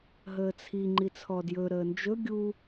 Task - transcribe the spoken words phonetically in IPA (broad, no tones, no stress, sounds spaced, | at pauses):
ɦ əː t͡sʰ i ŋ͡ǃ i t͡sʰ ɔ d j ɵ ɾ əː n d͡ʒ ɵ ɡʲ u